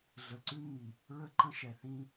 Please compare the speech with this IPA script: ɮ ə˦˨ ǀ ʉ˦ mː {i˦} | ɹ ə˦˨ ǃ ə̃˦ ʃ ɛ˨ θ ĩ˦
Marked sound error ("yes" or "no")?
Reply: yes